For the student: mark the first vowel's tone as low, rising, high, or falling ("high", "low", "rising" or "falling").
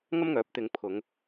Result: high